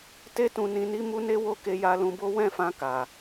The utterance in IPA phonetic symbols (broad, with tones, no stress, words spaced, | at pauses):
te˦tũ˧ nĩ˧ni˦ mu˦ne˦wo˦ ke˧ ja˧ lũ˧bo˦ wɛ̃˦˨fã˧ka˨